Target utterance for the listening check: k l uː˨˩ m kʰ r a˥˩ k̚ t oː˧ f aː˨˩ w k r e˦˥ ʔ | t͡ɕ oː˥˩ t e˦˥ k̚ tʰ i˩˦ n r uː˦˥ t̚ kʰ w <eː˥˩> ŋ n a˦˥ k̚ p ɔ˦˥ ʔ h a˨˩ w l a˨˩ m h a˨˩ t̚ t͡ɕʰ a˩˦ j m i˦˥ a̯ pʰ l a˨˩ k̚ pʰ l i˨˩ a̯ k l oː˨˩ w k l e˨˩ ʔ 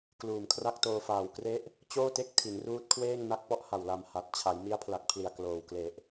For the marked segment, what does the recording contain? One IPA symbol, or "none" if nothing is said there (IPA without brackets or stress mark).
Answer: eː˥˩